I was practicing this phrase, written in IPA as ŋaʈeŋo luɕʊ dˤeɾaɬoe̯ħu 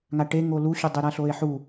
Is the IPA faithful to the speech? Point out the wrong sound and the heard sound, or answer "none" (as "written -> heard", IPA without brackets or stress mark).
none